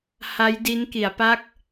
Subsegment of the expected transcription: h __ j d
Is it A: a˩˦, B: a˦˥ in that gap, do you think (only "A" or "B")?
B